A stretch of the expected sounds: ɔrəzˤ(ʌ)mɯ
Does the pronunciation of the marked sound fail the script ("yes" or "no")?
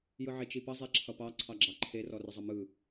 no